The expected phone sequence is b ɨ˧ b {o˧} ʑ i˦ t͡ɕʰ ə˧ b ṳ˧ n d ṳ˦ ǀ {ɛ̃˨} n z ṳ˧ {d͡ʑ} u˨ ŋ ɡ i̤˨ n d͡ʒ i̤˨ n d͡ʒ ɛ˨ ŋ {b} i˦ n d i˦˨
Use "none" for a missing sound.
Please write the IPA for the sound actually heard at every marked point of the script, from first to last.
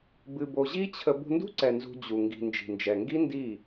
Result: o˧, ɛ˨, d͡ʑ, ɡ

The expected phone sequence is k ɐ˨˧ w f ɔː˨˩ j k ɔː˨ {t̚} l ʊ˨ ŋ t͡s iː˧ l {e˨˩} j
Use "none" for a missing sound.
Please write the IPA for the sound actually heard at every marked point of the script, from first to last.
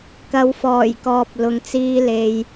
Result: p̚, e˨

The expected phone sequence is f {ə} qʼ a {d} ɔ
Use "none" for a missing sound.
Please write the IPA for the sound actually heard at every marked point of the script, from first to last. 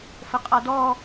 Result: ə, d

